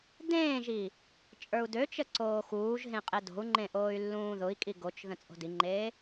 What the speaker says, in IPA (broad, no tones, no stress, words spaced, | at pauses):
dẽːʒi | t͡ʃʼə˞u̯døt͡ʃə ǀoːxuːʒɦẽ qʼedo̤u̯ŋ͡ǃẽ ʔoːy̯lːũːðʊi̯kʼi ɡot͡ʃ ðə̃t͡sʼo̤diŋ͡ǃeː